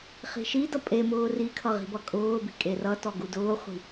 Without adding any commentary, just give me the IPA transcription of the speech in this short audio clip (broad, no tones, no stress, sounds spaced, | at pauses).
χ i̤ ʃ i d ʌ pʼ e m ʊː r i kʰ ʌ ʁ i̤ b ʌ kʼ ʊː b i̤ kʼ e r ʌ t ɔ ɡ u d ʊː χʷ i̤